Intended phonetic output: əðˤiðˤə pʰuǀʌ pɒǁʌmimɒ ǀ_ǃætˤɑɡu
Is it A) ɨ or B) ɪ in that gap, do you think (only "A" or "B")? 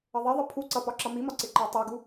B